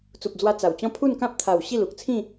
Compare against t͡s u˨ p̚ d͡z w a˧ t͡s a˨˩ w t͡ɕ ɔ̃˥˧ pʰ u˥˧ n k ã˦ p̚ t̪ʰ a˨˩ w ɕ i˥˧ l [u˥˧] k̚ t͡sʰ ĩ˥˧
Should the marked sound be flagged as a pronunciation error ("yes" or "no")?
yes